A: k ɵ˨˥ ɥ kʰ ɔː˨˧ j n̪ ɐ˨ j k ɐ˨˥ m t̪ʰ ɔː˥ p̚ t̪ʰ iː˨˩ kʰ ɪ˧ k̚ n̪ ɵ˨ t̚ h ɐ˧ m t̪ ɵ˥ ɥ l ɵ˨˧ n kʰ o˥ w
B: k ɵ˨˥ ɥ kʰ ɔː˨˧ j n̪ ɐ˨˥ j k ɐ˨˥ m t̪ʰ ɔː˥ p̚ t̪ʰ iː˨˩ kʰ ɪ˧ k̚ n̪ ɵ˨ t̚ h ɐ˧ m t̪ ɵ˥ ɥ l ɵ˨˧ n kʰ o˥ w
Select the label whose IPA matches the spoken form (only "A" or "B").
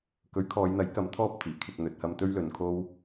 B